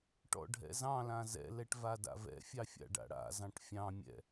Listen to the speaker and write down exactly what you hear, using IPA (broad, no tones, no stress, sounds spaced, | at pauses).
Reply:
ʈ ɔ̰ ɖʱ ɛ̰ z ɑ̃ l ã z ɛ̰ l ɛ ʈ v a d a̰ v ɛ̰ fʲ ɑ fʲ a̰ ɖ a̰ ɽ a̰ z ɑ̃ ʈ fʲ ɑ̃ mʲ ɛ̰